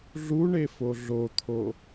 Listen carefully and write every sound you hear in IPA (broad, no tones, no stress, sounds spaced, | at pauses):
ɮ u ɳ e f o ɮ o t̪ʰ o